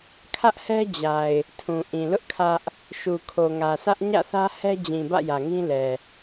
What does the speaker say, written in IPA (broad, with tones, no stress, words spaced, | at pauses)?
kʰä˦ʔhɛ˦d͡ʑa˨ɪ̯ | tʰũ˨ʔĩ˨lʊ˦ʔ kʰä˦ʔ | ʃu˨kʰo˨ŋä˨sʰä˦ʔ ɲä̰˦˨θä˦hɛ˦d͡ʑĩ˨ bä̰˦˨jä˨ŋĩ˦lɛ˨